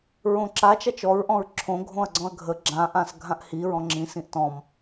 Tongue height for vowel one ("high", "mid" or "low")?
mid